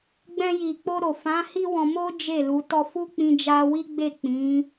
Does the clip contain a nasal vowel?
yes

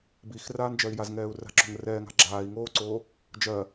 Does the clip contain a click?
yes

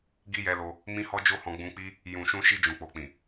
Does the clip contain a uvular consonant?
no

